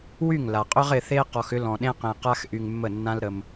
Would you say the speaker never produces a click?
yes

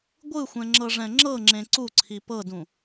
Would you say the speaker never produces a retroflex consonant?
no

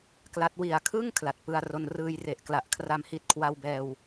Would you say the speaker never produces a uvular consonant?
yes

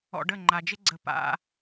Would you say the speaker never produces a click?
no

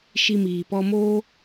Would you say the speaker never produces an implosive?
yes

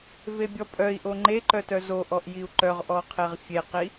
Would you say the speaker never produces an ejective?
no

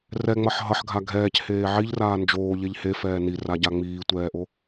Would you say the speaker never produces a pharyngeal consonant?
no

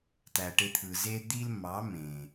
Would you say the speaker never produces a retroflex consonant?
no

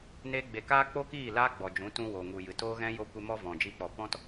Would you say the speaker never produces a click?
yes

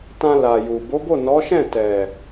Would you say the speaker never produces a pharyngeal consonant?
yes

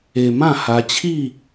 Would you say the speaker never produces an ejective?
yes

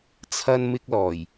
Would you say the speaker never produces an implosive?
yes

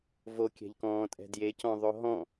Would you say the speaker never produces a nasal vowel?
no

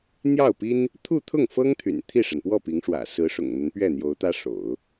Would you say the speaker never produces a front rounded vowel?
no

